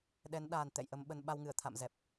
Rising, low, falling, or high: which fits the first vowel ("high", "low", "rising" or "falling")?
rising